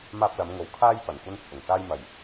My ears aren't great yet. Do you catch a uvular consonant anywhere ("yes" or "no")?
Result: no